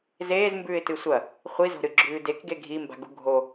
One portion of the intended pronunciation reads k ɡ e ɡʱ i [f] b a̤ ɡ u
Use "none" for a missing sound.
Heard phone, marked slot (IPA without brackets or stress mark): m